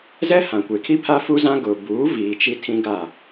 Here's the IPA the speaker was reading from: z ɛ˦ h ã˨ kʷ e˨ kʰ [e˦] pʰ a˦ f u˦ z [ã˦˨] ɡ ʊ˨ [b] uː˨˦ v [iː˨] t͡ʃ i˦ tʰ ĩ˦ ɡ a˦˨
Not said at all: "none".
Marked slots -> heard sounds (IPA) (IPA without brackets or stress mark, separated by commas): i˦, ã˦, b, iː˨